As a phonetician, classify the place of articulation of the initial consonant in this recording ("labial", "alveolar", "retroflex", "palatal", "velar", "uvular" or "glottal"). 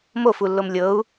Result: labial